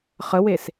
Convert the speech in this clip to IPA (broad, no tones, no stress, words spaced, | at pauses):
χəwes